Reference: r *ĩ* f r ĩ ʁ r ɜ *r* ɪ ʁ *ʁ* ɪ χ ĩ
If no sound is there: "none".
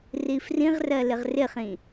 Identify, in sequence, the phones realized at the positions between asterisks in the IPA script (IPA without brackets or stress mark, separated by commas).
i, l, r